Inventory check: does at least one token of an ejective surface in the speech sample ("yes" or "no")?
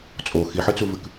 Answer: yes